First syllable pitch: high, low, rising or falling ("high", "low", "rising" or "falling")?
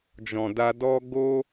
low